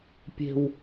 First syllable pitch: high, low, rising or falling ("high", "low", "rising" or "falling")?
low